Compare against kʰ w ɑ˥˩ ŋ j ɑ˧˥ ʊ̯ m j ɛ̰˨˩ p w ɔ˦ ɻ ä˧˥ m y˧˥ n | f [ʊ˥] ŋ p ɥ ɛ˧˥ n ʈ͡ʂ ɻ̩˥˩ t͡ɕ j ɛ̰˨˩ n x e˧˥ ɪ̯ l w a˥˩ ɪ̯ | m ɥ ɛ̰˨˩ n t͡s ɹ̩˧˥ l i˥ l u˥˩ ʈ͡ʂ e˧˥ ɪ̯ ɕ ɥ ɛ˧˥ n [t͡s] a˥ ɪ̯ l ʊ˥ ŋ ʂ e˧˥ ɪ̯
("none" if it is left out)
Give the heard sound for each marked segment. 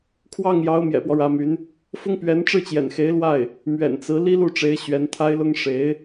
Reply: ʊ˥, t̪ʰ

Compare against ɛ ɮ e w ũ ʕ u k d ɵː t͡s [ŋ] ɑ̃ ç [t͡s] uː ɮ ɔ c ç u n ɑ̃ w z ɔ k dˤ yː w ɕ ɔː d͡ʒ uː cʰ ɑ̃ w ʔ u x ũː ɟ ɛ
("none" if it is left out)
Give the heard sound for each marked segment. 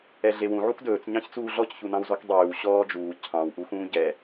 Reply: ɲ, t͡s

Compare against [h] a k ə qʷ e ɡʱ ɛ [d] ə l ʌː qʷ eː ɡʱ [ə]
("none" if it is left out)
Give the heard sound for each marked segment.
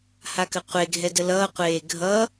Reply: h, d, ʌ

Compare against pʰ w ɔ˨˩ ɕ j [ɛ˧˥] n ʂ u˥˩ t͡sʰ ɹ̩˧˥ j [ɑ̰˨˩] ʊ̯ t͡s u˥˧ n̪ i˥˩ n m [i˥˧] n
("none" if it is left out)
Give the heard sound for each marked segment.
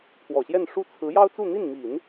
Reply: ɛ˥˧, ɑ˥, i˨˩˦

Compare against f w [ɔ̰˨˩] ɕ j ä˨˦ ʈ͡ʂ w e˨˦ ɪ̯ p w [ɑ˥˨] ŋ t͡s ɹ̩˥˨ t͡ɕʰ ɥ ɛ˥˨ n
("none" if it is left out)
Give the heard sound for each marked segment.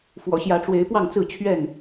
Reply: ɔ̰˨˩, ɑ˥˨

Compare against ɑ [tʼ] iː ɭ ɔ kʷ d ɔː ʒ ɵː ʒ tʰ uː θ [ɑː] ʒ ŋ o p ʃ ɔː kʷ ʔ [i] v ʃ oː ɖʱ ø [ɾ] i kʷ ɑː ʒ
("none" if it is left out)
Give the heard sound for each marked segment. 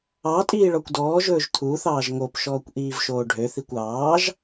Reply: tʼ, ɑː, iː, θ

